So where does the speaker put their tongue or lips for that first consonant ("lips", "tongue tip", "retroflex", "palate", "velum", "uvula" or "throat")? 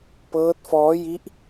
lips